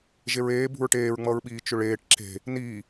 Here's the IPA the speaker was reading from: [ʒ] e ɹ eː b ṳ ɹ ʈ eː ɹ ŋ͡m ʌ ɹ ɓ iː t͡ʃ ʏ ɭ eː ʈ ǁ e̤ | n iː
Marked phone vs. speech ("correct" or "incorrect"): correct